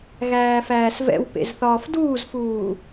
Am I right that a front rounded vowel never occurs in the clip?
yes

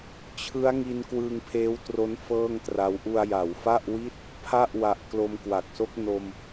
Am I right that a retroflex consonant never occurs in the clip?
yes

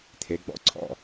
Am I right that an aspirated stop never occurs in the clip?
no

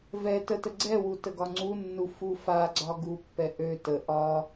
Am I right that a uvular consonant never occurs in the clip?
yes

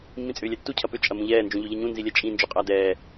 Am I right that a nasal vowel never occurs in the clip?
no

